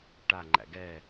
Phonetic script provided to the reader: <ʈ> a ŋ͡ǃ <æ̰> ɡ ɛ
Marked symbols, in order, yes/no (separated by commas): yes, yes